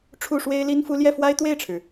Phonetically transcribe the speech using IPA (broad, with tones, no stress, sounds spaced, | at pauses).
ʈ͡ʂʰ u˥˩ ʂ w e˥ ɪ̯ l i˥ n f u˥ l j ɛ˥˩ f w a˥ ɪ̯ t̪ w e˥˩ ɪ̯ ʈ͡ʂʰ ɻ̩˩